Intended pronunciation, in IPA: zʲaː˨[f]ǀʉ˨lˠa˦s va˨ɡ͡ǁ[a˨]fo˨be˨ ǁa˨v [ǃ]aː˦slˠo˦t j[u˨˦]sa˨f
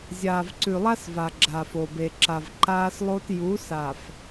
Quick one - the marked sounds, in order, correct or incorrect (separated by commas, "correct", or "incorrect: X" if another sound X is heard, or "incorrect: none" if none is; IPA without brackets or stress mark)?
incorrect: v, correct, correct, correct